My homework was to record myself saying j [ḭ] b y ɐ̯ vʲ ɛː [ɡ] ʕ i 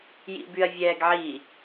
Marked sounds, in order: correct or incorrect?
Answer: correct, correct

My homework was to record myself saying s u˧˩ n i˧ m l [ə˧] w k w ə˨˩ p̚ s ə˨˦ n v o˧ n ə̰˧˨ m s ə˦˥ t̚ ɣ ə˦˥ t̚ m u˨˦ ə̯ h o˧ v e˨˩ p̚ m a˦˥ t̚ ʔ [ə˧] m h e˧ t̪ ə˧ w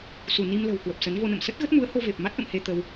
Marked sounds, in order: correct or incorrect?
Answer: incorrect, incorrect

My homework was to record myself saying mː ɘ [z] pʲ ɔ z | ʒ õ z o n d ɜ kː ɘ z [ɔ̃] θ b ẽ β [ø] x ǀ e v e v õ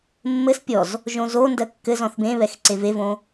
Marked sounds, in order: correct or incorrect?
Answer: incorrect, correct, incorrect

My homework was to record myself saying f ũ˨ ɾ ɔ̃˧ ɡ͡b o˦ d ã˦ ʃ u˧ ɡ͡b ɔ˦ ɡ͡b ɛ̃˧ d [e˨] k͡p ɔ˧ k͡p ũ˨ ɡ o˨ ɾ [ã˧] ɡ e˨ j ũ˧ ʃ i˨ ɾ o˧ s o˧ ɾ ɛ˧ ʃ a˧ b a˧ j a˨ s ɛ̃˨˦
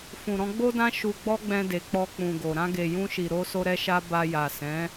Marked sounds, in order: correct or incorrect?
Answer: correct, correct

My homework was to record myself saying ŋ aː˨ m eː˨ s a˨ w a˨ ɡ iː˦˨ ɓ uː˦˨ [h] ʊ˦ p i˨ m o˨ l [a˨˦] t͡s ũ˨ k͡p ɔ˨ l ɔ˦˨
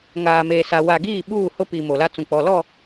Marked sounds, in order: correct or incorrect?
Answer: correct, incorrect

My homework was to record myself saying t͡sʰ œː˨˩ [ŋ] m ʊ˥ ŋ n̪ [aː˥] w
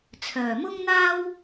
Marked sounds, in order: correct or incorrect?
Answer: incorrect, correct

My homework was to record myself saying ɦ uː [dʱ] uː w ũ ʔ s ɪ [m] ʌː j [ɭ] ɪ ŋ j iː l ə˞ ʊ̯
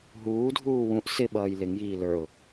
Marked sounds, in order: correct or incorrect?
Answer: correct, incorrect, incorrect

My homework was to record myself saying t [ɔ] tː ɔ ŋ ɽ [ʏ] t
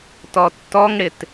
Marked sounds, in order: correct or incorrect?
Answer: correct, incorrect

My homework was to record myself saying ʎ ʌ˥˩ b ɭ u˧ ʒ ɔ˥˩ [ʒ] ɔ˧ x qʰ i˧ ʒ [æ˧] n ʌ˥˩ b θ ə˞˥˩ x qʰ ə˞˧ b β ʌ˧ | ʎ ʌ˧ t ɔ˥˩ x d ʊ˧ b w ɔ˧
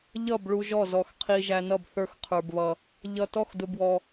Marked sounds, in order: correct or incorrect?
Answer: incorrect, correct

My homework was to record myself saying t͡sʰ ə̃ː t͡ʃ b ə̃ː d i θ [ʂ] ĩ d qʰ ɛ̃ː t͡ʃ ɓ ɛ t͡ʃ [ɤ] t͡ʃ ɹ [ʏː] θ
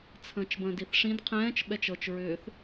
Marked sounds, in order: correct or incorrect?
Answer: correct, correct, correct

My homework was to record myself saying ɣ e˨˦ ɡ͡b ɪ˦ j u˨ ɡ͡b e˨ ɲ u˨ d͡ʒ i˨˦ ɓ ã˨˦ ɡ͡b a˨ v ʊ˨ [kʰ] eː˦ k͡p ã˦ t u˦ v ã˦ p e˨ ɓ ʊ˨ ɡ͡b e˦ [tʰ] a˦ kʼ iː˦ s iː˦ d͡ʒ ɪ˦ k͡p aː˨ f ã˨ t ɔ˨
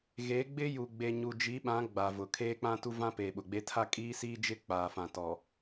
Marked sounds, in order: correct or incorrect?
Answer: correct, correct

